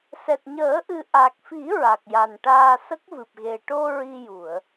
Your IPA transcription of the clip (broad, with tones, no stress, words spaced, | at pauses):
sɛ˨˩t̚ɲəː˨˩˦ʔɨ˨˩ ʔa˨˩k̚fi˨˩˦ ɹa˨˩k̚ja˨˩nʈaː˧ sə˦˥k̚vɨ˨˩p̚ɣe˨˩ ʈo˧ ɹi˧ju˨˩˨ə̯